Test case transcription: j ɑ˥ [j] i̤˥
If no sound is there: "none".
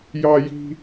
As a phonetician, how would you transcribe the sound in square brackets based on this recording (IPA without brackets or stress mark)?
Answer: j